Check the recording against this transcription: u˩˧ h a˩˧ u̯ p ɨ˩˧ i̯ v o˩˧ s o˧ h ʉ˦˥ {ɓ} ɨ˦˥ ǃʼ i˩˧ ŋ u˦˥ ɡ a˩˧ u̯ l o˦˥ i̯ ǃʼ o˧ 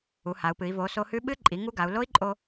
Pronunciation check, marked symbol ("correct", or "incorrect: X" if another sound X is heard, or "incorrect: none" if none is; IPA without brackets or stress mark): correct